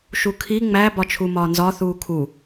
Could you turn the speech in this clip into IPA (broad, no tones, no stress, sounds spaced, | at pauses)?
ʃ u kʰ i ŋ͡m æ b ɒ t͡ʃʰ u m ɒː n z ɒ θ uː kʰ u